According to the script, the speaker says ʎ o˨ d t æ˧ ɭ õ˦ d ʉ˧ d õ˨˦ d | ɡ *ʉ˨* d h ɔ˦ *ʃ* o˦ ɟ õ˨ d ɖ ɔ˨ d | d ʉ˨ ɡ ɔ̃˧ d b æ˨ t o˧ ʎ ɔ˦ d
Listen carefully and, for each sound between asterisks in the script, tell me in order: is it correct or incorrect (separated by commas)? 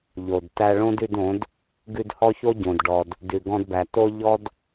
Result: incorrect, incorrect